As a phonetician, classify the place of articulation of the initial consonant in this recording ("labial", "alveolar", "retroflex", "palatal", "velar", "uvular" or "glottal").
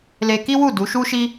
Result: alveolar